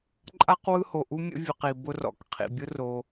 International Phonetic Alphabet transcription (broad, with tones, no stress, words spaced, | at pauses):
ǃʼa˥q wɯ˦ho˩ʔu˦ mʲə̰˦vʲə˨qi˩ bʊ˦rɔ̰˩k qʰḭ˩bʲʊ˥ro˨